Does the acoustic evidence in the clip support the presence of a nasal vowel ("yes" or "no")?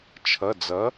no